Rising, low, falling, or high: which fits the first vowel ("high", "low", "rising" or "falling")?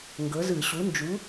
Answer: rising